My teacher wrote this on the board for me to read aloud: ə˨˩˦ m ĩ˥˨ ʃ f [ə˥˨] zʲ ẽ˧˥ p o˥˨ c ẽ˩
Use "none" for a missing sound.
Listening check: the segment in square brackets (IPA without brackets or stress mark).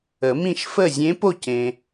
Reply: ə˥˨